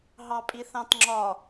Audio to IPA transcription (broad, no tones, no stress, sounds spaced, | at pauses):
ɦ ɑ pʼ i θ ɑ̃ t ŋ͡ǁ ɒ